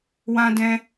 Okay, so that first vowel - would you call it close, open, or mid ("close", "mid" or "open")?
open